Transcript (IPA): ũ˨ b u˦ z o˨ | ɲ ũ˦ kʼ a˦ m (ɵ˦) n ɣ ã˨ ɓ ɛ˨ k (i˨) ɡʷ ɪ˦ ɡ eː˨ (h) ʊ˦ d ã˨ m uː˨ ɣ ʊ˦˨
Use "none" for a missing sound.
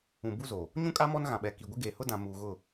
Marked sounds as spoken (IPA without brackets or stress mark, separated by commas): ɔ˦, i˨, h